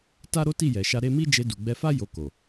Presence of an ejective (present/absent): absent